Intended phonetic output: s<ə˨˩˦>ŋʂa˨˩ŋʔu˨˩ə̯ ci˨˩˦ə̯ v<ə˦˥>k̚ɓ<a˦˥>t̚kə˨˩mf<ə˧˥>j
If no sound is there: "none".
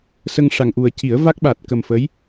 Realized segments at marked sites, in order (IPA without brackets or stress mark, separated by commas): ə˧, a˦˥, a˨˩, ə˧˥